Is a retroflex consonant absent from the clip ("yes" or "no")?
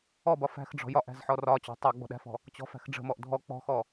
no